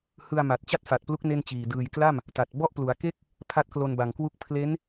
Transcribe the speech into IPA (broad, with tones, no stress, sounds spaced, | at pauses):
h ɯ˧ a̯ m a˨˩ t̚ t͡ɕ a˥˩ t̚ f a˨˩ t̚ p l u˦˥ k̚ n e˥˩ n t͡ɕ iː˨˩ d ɯː˨˩ j k l a˥˩ m | t a˨˩ t̚ b ɔ˥˩ ʔ p l u˩˦ a̯ k e˥˩ k̚ | pʰ a˦˥ t̚ k l o˧ n b a˨˩ ŋ k w u˦˥ k̚ pʰ l e˦˥ n